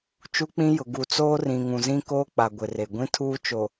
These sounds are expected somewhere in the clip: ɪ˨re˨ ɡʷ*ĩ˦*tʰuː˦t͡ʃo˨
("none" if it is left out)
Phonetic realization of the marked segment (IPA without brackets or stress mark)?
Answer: ĩ˦